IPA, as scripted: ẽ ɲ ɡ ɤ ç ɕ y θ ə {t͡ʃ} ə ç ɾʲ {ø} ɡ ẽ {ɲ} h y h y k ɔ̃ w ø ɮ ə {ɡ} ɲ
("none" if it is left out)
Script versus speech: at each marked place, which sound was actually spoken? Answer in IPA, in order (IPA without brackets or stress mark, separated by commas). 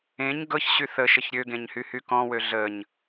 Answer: ʃ, ø, ɲ, none